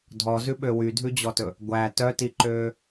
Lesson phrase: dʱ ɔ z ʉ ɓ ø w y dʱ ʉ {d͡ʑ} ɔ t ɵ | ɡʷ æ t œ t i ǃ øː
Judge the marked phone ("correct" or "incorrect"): correct